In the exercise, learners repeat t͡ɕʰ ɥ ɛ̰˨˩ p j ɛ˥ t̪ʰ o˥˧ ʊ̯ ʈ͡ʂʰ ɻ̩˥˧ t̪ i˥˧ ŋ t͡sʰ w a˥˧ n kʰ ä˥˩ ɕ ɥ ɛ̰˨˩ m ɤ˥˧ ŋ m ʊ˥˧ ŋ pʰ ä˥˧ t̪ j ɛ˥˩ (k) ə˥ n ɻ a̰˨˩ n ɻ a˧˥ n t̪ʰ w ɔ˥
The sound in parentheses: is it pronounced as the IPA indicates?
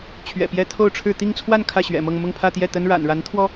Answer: no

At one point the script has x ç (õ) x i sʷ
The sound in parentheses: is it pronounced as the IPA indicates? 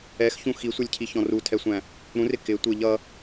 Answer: no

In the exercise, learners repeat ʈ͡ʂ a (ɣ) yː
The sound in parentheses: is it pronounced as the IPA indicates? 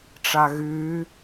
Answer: yes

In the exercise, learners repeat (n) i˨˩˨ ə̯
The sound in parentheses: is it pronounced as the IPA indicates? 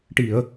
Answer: no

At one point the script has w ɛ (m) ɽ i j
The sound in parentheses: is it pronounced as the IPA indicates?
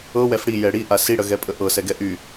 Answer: no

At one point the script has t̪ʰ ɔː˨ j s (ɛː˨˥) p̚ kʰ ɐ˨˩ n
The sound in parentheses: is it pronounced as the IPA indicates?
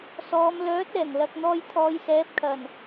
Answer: yes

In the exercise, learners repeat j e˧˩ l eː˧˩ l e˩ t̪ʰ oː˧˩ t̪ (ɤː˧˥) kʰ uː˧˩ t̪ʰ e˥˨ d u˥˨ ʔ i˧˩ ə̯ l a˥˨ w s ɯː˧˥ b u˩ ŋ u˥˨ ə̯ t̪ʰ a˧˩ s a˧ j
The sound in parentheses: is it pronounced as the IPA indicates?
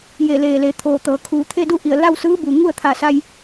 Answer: no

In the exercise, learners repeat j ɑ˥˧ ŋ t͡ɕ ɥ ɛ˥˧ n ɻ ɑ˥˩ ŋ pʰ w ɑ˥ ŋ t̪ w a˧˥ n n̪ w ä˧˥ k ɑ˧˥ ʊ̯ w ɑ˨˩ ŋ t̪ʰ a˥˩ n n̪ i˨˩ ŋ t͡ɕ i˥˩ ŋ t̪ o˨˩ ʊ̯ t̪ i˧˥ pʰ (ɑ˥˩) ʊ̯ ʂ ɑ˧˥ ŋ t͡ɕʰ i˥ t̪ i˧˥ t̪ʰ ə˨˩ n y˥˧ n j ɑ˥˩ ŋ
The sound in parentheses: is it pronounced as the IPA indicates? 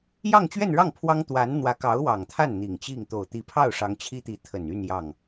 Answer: yes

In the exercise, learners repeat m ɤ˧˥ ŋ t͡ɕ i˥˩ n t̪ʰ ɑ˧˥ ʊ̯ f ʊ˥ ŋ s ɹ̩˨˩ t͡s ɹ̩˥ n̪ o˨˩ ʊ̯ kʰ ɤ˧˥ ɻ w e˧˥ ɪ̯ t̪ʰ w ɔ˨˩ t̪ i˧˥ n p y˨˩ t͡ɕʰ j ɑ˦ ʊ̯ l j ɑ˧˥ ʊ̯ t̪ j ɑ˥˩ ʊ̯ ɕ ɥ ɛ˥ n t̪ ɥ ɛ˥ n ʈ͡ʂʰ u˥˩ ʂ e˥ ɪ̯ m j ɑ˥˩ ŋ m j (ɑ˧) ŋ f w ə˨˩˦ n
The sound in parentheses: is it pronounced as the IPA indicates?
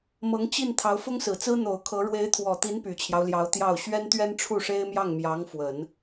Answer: no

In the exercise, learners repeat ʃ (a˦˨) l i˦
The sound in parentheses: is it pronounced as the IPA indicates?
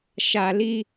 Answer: no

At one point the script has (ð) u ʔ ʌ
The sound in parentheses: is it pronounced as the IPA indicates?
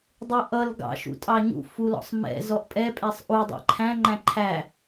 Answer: no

